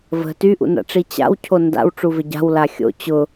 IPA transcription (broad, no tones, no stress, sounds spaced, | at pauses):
v ə̤ t y ʔ ṵ n a̰ ʈ͡ʂ i t͡ɕ a̰ w cʰ o n d a̰ w ʈ͡ʂ u v ɪ ɟ a̤ w l a xʲ o̰ t͡ɕ ʊ